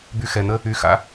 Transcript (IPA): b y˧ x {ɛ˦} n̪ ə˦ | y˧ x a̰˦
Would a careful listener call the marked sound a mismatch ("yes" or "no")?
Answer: yes